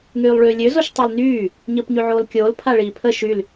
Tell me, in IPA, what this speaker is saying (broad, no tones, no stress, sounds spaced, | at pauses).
ŋ yː lˠ ɭ yː lʲ ø z o ʃ tˤ ø l n yː | ɲ əː p ɲ y ʕ oː l kʲ oː l pʰ a ɭ iː pʰ ə ʃ y l